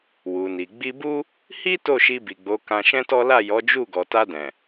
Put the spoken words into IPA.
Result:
w u˨ n i˨ ɡ͡b i˧ b u˦ | h i˦ t o˦˨ ʃ i˧ b i˨ ɡ͡b o˨˦ k ã˧ ʃ ɛ̃˦ t ɔ˦ l a˦˨ j ɔ˨˦ d͡ʒ u˦˨ ɡ ɔ˨ t a˧ d ɛ̃˨

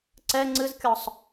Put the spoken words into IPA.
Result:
ǀ ɛ ŋ͡ǀ ɨ z kʲ ɔ sˤ

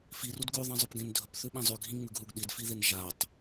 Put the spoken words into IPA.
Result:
f i r u d ɡ ʉ ðˤ ẽ zˤ ɵ p ɡ ẽ n dʱ ɵ p θ ʉ ɓ ĩ zˤ ʉ ɡʱ ĩ ŋ͡m ʉ ɡ ɦ u ɡ ɗ i d f i ð e n ʒ a tˤ

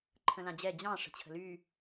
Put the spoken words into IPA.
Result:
ǃʰ ə̃ l ã d͡ʑ ɛ d͡ʑ ɑ̃ ʂ ə̤ t͡ɕʰ ə̤ l y

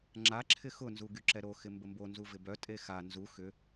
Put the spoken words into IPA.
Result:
ŋ͡ǁ a ǁʰ ɪ x ʊ n z u ɡ y ǁ ɛ ɾ o x ɪ m b ə m b o n z u v ɪ b œ tʼ e x a n z u x ʏ

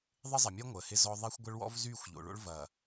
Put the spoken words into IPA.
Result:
ðˤ ɪ˦ zˤ ɐ˨ mʲ əː˦ ŋʷ əː˨ h ɪ˦ z ɔ˦ ðˤ e˦ xʷ ɡʷ ə˦ ɭ w ɔ̰˦ v z yː˦˨ xʷ ʎ o̰˨ ɭ o̰˦ ɭ v ɐ˨

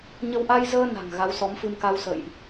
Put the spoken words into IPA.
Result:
ɲ ə˧ w ʔ a˧ j z əː˧ n a̤˨˩ ŋ ɣ a˨˦ w s ɔ˨˦ m f ɨ˧ m k a˧ w s ə̰ː˧˨ j ʔ

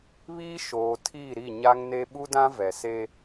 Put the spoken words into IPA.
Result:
β iː˦ ʃ oː˨ tʰ iː˦˨ ɾ i˦˨ ɲ a˦ ŋ n e˦ ɓ u˦ d ã˦ v ɛ˨ s e˦

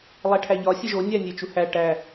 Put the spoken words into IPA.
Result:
lˠ æ ʈʰ æ ʎ ɒ sʲ e ʒ o nʲ æ nʲ e t͡ʃ u h æ ʈ æ

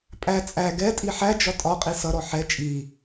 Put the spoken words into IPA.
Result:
pʼ æ t͡sʼ æ ɡ ɛ tʼ i ħ æ d͡ʒ ɒ tʼ ɒ qʼ i s ʌ ɾ ɔ ħ ɛ t͡ʃʼ i

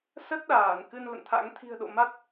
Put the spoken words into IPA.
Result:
s ə˦˥ t̚ ɗ aː˧˩ n k ɨ˧ n l ə̰˧˨ n t̪ʰ a̰˧˥ ŋ t̪ʰ i̤˨˩ ə̯ ɗ o̰˧˨ m a˦˥ t̚

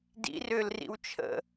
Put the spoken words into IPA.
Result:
d ḭ r ʏː l r ḭ w t͡ʃʰ ə̰

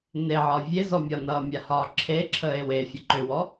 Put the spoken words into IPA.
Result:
n e ʕ ɒ vʲ e z ɔ mʲ ɒ n ʌː mʲ a h ɒː ǁʰ e ǁʰ əː e̯ w e fʲ ə ǃ ʏ w ɔ

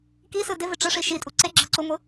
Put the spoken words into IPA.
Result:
k i s ɯ d ɪ v ɪ ʈ͡ʂ ɯ ʂ i ʃ i tʼ u ǀ e ɡ͡ǁ ɤ ǀ u ŋʷ ɯ

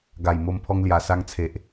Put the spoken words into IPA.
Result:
ɡ a˨˩ j m o˧ m pʰ ɔ˧ ŋ l j a˨˩ s a˧ ŋ t͡sʰ e˨ ʔ

